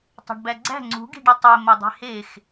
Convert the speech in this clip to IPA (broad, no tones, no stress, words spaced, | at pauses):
tˤæ̤ɖbæɡ͡ǀæ̤ ŋ͡ǀṳ ɡi̤ɖotˤe mɒdˤe̤hex